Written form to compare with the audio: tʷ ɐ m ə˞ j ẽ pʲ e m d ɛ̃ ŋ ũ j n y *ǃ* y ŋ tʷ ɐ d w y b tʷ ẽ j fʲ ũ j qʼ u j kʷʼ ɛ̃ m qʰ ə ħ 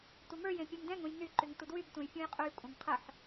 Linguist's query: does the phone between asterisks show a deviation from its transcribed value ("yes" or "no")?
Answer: no